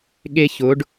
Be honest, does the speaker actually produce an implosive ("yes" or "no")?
yes